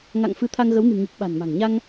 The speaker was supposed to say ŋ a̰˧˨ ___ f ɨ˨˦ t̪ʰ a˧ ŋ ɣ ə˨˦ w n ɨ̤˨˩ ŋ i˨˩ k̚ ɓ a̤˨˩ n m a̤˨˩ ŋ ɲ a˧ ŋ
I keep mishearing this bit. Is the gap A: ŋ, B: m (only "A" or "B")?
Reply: A